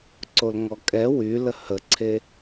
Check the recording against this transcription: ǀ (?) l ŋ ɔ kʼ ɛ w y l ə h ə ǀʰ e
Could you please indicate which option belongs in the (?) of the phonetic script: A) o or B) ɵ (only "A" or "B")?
A